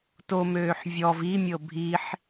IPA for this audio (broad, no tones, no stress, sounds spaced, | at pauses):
t o m øː ħ vʲ ɔ v i mʲ ɤ bʱ i ħ